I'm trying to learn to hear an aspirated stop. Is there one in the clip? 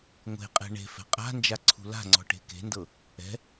yes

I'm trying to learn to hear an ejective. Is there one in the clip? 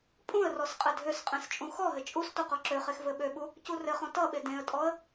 yes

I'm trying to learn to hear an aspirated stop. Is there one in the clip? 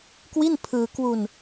yes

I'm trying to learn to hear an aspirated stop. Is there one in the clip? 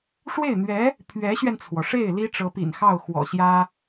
yes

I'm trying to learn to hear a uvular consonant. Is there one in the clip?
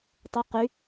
yes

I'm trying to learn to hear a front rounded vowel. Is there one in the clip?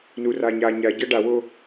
no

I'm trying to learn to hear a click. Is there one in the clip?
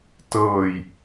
no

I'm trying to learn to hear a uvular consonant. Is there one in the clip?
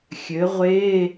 yes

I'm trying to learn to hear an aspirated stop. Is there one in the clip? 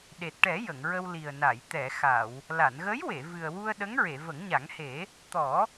no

